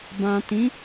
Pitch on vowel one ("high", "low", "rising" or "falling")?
low